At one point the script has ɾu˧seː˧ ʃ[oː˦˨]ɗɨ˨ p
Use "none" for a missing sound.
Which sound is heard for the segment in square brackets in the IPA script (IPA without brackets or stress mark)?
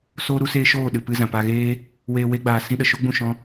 oː˦˨